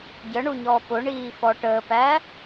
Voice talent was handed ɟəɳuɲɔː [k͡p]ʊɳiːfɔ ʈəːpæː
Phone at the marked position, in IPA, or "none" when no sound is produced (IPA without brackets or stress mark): p